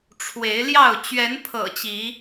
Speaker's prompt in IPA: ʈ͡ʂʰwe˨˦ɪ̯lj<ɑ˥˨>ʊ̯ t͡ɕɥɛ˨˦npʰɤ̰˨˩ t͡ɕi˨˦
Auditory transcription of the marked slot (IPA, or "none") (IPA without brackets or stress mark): ɑ˥˨